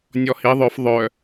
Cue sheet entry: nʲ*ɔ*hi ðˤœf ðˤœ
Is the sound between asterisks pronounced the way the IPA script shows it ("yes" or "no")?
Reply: yes